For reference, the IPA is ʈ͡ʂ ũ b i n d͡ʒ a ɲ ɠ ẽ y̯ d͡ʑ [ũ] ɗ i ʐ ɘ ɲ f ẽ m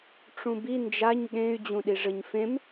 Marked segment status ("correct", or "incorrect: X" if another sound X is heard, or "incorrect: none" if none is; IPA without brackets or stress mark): correct